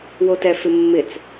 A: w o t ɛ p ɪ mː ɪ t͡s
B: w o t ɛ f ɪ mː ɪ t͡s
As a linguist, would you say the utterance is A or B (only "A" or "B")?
B